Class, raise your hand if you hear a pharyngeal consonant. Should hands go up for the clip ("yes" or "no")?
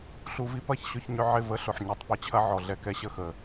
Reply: yes